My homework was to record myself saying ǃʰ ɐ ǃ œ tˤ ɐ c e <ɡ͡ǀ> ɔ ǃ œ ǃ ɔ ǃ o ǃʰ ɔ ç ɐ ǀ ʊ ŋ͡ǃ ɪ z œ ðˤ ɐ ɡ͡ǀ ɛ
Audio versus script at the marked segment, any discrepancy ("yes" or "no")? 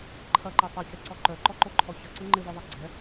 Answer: yes